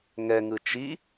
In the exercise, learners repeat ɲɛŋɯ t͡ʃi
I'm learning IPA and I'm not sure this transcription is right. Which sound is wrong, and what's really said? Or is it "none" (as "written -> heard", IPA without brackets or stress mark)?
ɲ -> ŋ